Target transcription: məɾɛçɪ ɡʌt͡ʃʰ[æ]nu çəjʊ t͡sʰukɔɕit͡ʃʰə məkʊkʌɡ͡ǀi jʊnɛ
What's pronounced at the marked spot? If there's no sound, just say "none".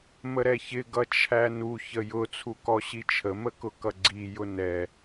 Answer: æ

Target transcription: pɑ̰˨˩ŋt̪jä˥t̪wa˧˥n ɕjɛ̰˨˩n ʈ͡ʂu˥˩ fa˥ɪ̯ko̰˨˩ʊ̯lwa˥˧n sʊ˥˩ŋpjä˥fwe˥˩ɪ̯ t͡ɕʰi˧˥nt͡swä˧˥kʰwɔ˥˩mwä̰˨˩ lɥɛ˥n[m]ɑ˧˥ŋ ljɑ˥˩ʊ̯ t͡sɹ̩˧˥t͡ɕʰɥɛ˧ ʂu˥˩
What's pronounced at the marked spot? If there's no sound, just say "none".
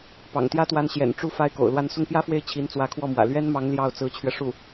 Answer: m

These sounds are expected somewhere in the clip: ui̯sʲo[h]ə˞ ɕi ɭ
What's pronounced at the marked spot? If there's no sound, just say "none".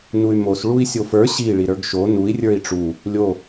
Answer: f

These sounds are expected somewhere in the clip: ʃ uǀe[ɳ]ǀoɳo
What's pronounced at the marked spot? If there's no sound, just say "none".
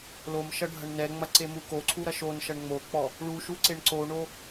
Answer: ɳ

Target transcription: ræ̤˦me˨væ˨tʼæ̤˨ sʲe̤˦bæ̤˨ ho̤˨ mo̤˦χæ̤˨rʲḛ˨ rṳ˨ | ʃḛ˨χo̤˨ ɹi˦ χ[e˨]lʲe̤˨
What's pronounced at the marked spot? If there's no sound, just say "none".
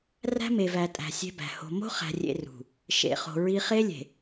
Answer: e˦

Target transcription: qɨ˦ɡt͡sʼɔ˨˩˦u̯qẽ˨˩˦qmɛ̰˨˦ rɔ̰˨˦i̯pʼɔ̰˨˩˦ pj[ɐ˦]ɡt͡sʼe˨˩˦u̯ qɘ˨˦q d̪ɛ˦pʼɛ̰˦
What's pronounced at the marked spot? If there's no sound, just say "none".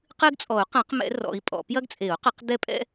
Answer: ɐ˦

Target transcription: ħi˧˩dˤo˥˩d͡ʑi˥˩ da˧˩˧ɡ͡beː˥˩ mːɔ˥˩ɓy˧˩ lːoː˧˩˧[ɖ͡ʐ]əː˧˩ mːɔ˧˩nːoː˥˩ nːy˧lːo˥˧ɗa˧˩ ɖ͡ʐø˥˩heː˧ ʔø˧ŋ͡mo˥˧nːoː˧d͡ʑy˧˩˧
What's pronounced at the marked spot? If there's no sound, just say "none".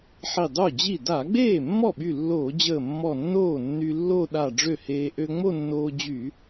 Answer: d͡ʑ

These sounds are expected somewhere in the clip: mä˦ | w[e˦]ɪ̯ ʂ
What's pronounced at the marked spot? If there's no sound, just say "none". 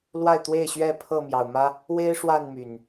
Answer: e˦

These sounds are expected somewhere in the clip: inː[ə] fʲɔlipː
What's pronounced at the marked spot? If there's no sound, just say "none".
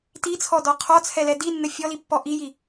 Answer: ə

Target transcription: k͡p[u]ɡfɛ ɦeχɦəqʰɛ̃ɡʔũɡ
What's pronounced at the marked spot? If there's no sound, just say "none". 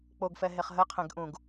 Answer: o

